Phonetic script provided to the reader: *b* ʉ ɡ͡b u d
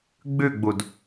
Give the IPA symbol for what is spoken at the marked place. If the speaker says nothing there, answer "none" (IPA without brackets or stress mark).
ɡ͡b